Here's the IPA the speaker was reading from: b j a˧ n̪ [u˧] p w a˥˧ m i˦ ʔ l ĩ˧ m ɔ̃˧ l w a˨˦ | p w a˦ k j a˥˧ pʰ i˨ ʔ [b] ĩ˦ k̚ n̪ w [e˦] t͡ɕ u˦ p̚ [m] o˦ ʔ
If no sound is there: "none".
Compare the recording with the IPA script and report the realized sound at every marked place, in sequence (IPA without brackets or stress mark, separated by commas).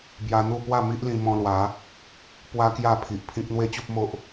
u˥˧, pʰ, e˦, m